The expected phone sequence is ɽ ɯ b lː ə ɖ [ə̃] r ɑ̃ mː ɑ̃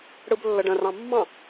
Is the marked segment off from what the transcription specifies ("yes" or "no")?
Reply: no